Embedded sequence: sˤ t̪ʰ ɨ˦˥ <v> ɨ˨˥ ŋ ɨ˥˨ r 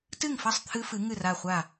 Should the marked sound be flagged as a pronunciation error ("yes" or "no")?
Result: yes